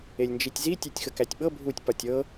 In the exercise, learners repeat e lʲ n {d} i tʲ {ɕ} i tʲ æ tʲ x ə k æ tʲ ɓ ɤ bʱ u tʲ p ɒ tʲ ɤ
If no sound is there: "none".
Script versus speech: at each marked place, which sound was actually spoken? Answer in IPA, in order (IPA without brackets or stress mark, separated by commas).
d͡ʒ, z